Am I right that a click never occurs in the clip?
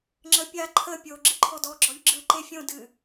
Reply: no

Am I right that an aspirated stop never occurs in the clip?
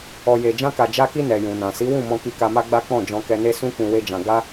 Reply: yes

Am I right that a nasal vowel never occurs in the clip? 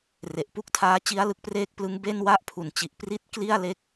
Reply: yes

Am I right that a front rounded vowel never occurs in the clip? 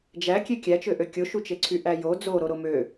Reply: no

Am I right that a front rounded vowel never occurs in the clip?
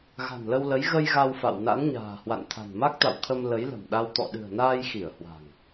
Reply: yes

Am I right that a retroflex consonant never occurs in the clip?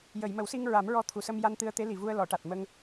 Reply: no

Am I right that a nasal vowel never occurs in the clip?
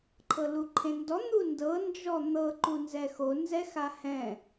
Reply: no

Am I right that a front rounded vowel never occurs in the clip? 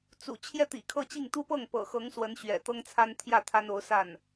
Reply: yes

